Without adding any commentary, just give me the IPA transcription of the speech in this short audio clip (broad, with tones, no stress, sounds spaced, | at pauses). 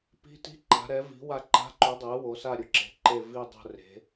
p i̤˧˥ t i̤˧˥˧ ǃ a̤˩˧ ɾ ɛ˩˧ v i̤˩˧ w a˦˨ ǃ a̤˧˥˧ ǃ u˩˥ dˤ e˩˥ w o˩˧ s a˦˨ ɾʲ ʊ˩˧ ǁ e̤˩˥ ǃ e˦˨ v i˦˨ dˤ o̤˦˨ r e̤˩˧